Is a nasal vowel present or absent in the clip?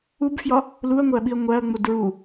absent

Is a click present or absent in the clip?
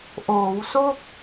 absent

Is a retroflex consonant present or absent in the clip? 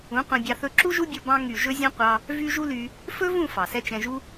absent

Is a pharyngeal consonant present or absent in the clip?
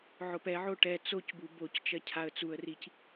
present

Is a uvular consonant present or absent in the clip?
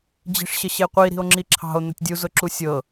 present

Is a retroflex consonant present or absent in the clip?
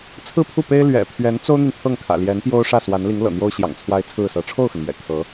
present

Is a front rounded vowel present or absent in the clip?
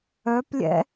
present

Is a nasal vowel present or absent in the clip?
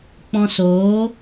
present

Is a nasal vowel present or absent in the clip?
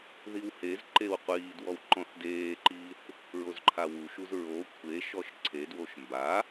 present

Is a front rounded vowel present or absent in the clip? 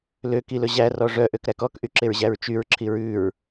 present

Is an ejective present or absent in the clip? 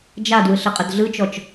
present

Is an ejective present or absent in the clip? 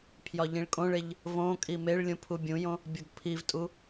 present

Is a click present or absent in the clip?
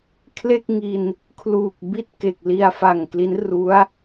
absent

